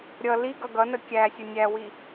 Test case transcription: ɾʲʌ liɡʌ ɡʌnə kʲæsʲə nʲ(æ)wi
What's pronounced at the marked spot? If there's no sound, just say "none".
æ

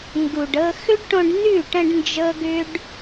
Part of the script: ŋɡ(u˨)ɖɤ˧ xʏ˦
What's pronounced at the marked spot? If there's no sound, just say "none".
u˨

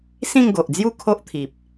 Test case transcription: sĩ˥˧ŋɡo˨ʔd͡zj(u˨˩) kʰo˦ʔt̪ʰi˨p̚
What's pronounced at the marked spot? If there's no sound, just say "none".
u˥˧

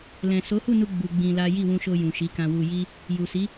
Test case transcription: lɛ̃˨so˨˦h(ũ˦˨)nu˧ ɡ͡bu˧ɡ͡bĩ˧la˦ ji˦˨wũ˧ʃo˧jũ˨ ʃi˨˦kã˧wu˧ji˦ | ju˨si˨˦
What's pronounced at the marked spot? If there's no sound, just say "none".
u˦˨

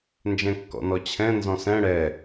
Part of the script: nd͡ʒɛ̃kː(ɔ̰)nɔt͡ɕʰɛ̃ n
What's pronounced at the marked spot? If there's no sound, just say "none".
ɔ̰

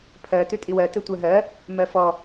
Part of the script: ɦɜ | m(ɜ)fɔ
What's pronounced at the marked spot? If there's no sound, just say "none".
ɜ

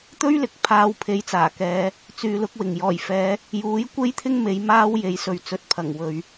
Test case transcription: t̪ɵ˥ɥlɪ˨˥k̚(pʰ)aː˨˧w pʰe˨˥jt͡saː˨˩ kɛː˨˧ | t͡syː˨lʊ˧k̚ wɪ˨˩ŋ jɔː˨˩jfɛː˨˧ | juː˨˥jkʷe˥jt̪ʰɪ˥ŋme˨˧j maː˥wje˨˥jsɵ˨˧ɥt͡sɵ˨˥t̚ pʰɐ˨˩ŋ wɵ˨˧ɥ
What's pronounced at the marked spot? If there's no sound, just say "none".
pʰ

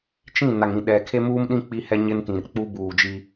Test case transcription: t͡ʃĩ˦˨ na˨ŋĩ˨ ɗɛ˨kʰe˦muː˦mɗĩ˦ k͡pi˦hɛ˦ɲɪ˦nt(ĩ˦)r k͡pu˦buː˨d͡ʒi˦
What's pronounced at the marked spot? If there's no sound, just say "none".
ĩ˨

